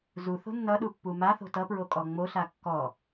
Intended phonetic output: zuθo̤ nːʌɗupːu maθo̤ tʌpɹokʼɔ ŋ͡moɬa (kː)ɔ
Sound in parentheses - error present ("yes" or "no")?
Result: no